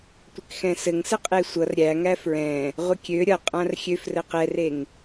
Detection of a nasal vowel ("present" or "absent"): present